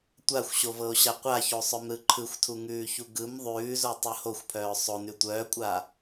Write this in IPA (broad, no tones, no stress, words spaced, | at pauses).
tʷaxʷɕovɤo̯ɕa qʷaçosˤœmɾɯ ǃʰɯxʷtʰuŋʉːçu ɡɯm ðˤʉːzotˤɯ hoxʷpʰœː sˤonʉ tʷœːkʷʼaː